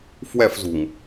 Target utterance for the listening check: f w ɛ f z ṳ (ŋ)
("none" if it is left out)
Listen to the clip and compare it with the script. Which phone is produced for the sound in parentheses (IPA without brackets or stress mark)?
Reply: ŋ